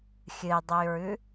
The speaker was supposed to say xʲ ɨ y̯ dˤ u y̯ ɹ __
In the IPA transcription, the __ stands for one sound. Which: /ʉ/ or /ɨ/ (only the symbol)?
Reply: ʉ